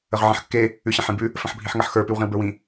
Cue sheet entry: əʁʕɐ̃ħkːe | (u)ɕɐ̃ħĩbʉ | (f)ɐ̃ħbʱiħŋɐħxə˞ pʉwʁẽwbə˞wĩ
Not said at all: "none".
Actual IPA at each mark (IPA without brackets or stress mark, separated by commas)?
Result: ʉ, f